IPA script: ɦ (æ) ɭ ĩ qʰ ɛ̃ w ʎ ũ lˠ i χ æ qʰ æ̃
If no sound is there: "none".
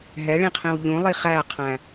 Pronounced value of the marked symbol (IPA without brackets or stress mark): ɛ